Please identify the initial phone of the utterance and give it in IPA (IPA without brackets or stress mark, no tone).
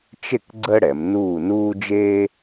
t͡ʃ